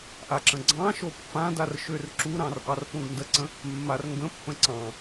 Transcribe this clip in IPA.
ʔ a ǁ ə̃ ɡ͡ǀ ɑ̃ ʃ o pː ã d a r ʃ ø r ǁ u ɾ ɑ̃ r ʔ ɑ r p õ ɡ n d ə ǀ ə̃ | mː a r ŋ ɡ ə̃ pː ə̃ ǀ ɑ̃

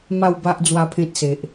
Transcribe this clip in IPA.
m a˥˧ w b a˦ ʔ d͡z w a˦ pʰ ẽ˦ t̚ s e˨ ʔ

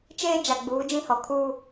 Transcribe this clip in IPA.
t͡ʃ eː˦ d͡ʒ a˨ ɡ͡b uː˨˦ d͡ʒ ĩ˦ h ɔ˨ kʰ uː˦

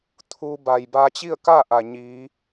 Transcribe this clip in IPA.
t̪ʰ uː˧ b a˩ j b aː˧ t͡ɕ i˥˨ ə̯ k aː˥˨ ʔ a˩ ɲ iː˩˧

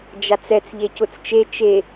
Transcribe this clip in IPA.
d͡ʒ a t͡s ɛ t͡s ʎ e c ʊ t͡s t͡ʃ e t͡ʃ e

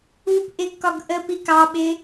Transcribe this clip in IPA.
u p ʔ ɪ ɡ k ɒ ɡ ʔ ə p i k ɑ ɓ ɪ

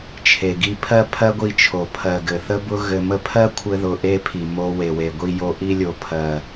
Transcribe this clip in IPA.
t͡ʃʰ e˨ ɡ i˧ pʰ ɜ˦ pʰ ɜ˦ ɡʷ i˧ t͡ʃʰ o˨ pʰ ɜ˨ ɡ ɘ˨ θ ə˦ b ʊ˦ ɣ ɘ˧ m ə˦ pʰ ɜ˦ kʷʰ ɘ˦ ð ʊ˧ ʔ e˦ pʰ i˨ m o˧ w e˨ w e˨ ɡʷ i˧ j o˧ ʔ i˧ lʲ o˨ pʰ ɜ˨

